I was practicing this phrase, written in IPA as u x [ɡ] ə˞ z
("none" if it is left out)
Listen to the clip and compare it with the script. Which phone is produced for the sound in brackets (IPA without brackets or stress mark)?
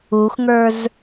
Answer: ŋ